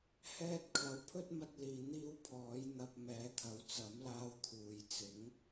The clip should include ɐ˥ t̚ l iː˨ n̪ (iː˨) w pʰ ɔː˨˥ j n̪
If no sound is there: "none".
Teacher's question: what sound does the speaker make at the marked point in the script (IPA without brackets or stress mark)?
iː˥